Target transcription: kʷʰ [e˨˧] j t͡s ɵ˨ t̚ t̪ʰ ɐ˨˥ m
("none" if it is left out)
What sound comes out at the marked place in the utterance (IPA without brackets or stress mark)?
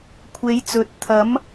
e˨˧